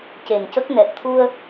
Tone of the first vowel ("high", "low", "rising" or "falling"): low